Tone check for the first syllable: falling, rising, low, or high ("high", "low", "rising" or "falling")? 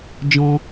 high